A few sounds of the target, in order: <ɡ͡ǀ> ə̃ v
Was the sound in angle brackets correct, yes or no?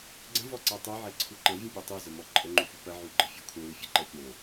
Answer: yes